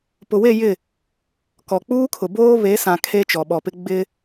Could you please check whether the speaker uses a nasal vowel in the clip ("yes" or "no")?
yes